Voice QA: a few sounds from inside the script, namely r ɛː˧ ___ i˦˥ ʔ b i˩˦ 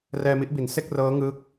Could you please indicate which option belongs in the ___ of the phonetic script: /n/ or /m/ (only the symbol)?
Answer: m